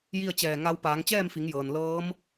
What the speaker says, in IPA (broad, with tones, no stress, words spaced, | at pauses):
ji˥˨ə̯t͡ɕɛː˧˩ ŋa˧˥w paː˩˧ŋt͡ɕɛː˥˨mfi˩˧ŋjɤː˩n lɤː˧˥m